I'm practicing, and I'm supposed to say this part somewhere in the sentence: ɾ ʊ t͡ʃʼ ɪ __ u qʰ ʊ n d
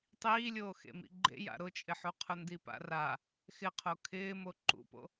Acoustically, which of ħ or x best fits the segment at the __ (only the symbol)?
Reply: ħ